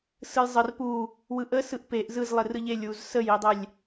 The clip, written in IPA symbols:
s ɯ j zˤ ə r p u | w ɯ ʔ ə s ɯ ʔ p e ʔ z ɯ z lˠ e r ɯ ʎ e lʲ w u z s ə j i dˤ ɛ lʲ

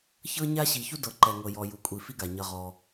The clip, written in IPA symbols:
ç ɤ˥ ɲ a˥ ɕ i˨ ç u˥ d ɤ˨ ǃ ɛ˨ ŋ ɤ˨ j ɔ˨ j u˨ kʷʼ i˨ f i˥ ɡ a˩ ɲ ʌ˨ ʁ ɔ˩

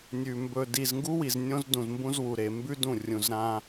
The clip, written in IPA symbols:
nʲ ʉ˨ m b ɵ˨ d i˨ z ŋ ɡ u˦ w i˨ z nʲ õ˦ z d ũ˨ z m b ũ˦ z w u˨ ɾ e˨ m b ʉ˦ d ũ˦˨ rʲ ũ˨ z ɾ ã˦

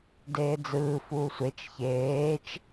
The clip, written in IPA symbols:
d eː d͡z ɯː f uː sʷ e t͡ʃ ç eː t͡ʃ

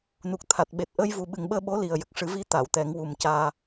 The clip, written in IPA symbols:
n u˨˩ k̚ t̪ʰ a˨˩ t̚ ɓ e˨˩ t̚ ʔ əː˧ j v u˨˩ ɓ ɨ˨˩ ŋ ɓ əː˧ ɓ o˧˥ l i˨˩ ə̯ j ə˨˩ k̚ ʂ ɨ˨˩˦ v i˧˥ t̪ a˨˩˨ w t̪ ɛ˨˩˦ ŋ w u˨˩ m c aː˧

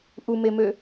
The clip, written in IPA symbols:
ʔ u m e m ø

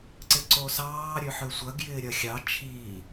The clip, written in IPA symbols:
ǀ ɪ ǀ o s ɑː ɾʲ ø ħ ø sʷ ɐ ɡ j ɪː ɾʲ ɐ xʲ ɑ t͡ʃʰ iː

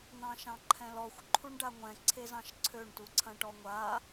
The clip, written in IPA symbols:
n̪ ɑ̃ ʃ ɑ̃ ǃʰ ɛ̃ l ɔ xʷ ǃʰ u ɳ ɖ a ŋʷ ɛ̃ ǀʰ e z ɑ̃ ʃ ǀʰ ø ɳ t u ǀʰ ɐ̃ ʈ ɔ ŋʷ a

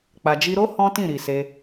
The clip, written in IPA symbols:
k͡p a˨ d͡ʒ i˧ ɾ o˦ h ɔ̃˦ t ĩ˦˨ ɾ i˨ s e˧

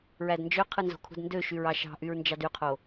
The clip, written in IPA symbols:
ɹ æ d n d͡ʒ ø qʰ ɯ n z o̤ kʰ ṳ d n d ø ʃ y ɹ ɑ ʃ ɑ̤ ʔ y ɹ n d͡ʒ ɑ d y qʰ o

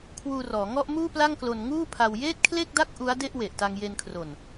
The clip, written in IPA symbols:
kʰ w uː˧ r ɔː˩˦ ŋ ɔ˥˩ ʔ m uː˥˩ p l a˥˩ ŋ k l o˧ n ŋ uː˥˩ pʰ a˧ w j eː˥˩ t̚ kʰ l e˥˩ k̚ d a˥˩ k̚ ʔ u˦˥ a̯ d e˥˩ ʔ w e˨˩ ʔ t a˧ ŋ j e˧ n kʰ r o˨˩ n

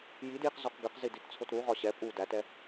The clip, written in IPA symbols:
j i d j i q z ɔ q ɡ ɨ q z i d i t t͡sʰ o t ɾ u ʁ ɒ ɕ ɛ pʼ u d æ t ɛ

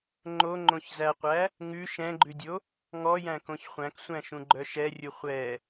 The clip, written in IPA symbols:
ŋ͡ǃ o ŋ͡ǃ õ ç z æ qʷ æ | ŋ ʉ ʃ ɛ̃ ɡ͡ǃ ʉ dʲ o | ŋ ɔ j æ̃ k õ ç χʷ æ̃ k sʷ æ̃ ʃ ũ ɡ͡ǃ œ ʃ ɛ rʲ u χʷ ɛ

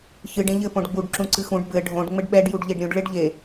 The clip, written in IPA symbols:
ç ɨ ɖ ẽ ʎ ɘ p õ ɖ ɡ͡b u ɖ ǁ ũ ǀ ɨ x ũ ɖ b ɘ ɖʱ õ ɖ ŋ͡m ɘ ɖ ɓ ɛ ɖ j u ɖ ʎ e ɖ ɾʲ ũ ɖ ɭ e ɖ ʎ e

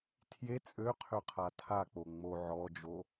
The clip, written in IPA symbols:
tʰ j e t͡sʼ ø qʰ ø qʰ a tʰ a k͡p o ŋ͡m o ʕ ɔ d͡ʒ o

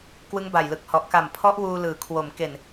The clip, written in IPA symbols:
k w ɯ˦˥ ŋ b a˨˩ j l ɯ˨˩ k̚ h ɔ˨˩ ʔ k a˨˩ m pʰ ɔ˦˥ ʔ w uː˧ l ɯː˩˦ kʰ w o˩˦ m k e˨˩ n

